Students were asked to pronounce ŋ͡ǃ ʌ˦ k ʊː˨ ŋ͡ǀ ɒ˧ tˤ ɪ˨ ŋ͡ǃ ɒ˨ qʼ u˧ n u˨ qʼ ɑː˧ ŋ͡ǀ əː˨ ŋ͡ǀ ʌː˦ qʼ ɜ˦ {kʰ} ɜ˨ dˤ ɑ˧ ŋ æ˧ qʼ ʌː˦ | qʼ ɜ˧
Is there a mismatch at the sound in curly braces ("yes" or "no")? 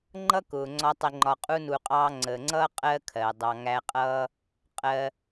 no